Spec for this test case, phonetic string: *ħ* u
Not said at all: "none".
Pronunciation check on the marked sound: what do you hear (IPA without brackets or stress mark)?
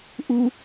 ʔ